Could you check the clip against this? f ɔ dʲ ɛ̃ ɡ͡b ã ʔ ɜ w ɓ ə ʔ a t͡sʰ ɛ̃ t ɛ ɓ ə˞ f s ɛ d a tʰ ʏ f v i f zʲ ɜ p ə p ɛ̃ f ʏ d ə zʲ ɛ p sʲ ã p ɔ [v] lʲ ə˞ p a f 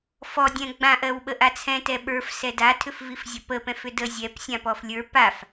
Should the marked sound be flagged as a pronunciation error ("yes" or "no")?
yes